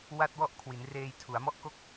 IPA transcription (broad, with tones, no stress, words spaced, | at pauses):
wa˥˩t̚wɔ˥˩ʔ kʰwi˩˦nreː˧j tʰu˩˦a̯mɔ˥˩ʔko˥˩k̚